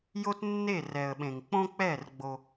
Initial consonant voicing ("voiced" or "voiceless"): voiced